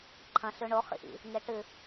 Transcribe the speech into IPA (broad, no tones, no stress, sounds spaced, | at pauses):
ǃʰ ɐ̃ ɬ ʉ ɳ o χ ḭ ʔ ḭ | ŋ e ʈ ɨ